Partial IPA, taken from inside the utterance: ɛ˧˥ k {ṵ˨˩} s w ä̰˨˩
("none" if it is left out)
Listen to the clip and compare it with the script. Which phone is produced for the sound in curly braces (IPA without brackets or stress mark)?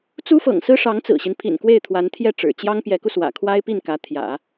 u˧